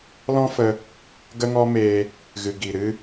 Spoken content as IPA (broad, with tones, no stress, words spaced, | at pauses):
lɔ̃˦fə˧ | ɡə˦ŋɔ˦meː˧ | ɣɨ˨ɡi˨ ɾɨ˧